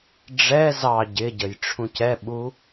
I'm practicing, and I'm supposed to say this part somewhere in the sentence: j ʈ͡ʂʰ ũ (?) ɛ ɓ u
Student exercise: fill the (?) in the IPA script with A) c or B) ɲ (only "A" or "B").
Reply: A